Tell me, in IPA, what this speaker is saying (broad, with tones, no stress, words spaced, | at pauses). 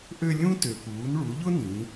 ʔø˧ lʲũ˥ tø˩puː˩˧n ɭu˩˧ʎʊ˥nĩ˩˧